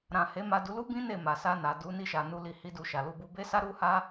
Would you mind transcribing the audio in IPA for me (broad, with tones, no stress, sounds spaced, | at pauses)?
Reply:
ɾ ã˨ h e˨˦ m a˧ d u˧ l u˦ b ĩ˦ n e˦˨ m a˨ s a˧ n a˨ d u˨˦ n i˧ ʃ a˨ n u˧ l i˧ h i˦ d u˧ ʃ a˨ l u˧ b u˧ b e˦ s a˦ ɾ u˦ h a˦